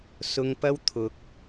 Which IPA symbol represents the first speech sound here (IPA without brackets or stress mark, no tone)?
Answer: s